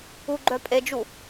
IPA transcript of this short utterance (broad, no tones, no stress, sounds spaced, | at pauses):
u ɡ͡ǃ œ pʼ e d͡ʒ u